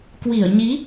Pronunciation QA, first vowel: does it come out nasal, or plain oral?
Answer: oral